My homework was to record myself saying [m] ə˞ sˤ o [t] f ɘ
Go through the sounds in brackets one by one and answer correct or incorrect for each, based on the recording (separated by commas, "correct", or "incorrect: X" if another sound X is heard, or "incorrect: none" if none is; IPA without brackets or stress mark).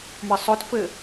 correct, correct